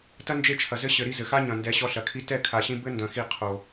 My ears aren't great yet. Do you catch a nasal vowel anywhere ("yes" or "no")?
yes